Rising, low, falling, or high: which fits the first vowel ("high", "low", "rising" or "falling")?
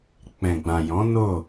low